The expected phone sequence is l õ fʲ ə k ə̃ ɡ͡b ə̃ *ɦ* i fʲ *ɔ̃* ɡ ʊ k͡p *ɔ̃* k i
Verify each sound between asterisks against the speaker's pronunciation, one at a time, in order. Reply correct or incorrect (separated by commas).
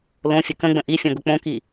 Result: incorrect, correct, incorrect